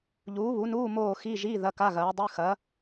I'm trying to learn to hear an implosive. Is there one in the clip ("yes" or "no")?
no